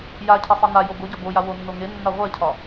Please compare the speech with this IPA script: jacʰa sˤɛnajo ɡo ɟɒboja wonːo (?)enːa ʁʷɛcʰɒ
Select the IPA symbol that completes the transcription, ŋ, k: ŋ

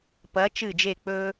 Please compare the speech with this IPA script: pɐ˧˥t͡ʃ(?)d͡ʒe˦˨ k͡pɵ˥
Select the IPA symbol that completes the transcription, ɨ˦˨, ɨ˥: ɨ˦˨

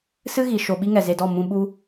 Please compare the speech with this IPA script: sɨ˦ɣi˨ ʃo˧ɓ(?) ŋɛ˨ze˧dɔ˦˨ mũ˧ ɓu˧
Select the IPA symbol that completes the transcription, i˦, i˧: i˦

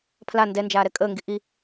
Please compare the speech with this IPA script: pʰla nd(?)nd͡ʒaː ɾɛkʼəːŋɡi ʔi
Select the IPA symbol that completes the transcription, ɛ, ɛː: ɛ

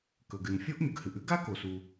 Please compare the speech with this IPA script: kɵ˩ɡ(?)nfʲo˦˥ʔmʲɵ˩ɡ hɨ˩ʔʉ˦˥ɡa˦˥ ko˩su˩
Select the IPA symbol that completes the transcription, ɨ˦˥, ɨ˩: ɨ˩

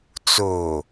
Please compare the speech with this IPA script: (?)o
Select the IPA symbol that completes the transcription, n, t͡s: t͡s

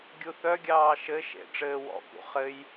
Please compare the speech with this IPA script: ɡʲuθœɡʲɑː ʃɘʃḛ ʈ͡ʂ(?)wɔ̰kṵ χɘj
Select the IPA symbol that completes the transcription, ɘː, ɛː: ɘː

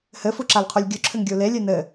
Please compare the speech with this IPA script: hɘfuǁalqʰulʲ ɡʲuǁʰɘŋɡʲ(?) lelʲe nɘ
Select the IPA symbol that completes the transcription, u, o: u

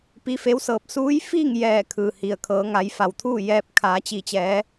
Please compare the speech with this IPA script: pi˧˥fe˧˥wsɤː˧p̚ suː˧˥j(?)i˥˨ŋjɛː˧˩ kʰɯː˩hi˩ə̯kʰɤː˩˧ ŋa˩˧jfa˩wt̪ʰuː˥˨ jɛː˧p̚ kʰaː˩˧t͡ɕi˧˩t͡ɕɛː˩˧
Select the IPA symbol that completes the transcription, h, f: f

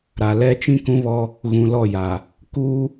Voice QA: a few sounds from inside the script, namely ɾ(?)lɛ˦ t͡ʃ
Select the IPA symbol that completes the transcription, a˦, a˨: a˨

